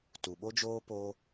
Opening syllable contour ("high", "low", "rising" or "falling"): low